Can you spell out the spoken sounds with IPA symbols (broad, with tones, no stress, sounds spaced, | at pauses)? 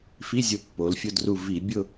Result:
f i˧˥˧ zʲ ʊ˧˩ pː o˩˧ l fʲ ʊ˧ d r u˧˩ v i˧˩˧ bʲ ʊ˥˧